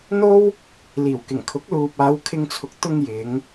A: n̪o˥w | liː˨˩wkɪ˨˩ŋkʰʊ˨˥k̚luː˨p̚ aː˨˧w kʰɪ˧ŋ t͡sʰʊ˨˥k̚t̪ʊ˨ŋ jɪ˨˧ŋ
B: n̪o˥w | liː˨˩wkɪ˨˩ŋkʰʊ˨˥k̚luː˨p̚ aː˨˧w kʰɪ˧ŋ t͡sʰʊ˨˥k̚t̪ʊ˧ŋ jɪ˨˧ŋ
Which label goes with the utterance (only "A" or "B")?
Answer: B